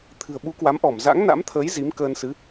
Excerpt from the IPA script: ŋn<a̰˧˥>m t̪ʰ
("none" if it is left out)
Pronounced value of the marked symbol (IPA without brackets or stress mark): a̰˧˥